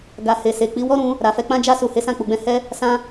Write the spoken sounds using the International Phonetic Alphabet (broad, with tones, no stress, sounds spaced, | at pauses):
ɡ a˨ h e˨ s e˨ k͡p i˨˦ w ɔ˦ ɾ ũ˧ | ɾ a˨ f ɛ˧ k͡p ã˦ d͡ʒ a˧ s u˨ h e˨˦ s ã˦˨ k͡p u˨ ɡ͡b ɛ̃˧ h ɛ˦ | s ã˧